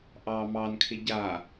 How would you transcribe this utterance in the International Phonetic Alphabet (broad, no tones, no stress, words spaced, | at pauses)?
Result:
ʔɑ mɑnkʰɪ ɟa